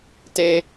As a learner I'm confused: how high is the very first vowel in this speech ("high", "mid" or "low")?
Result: mid